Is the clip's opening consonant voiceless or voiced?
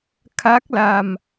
voiceless